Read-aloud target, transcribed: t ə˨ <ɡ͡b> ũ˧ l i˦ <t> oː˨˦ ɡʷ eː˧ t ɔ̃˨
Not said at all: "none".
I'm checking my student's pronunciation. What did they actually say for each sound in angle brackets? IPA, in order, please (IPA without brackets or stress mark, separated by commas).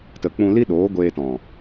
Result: k͡p, ɗ